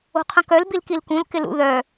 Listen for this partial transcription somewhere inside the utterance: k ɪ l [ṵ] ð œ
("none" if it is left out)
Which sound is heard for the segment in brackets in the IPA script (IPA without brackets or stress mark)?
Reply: ṵ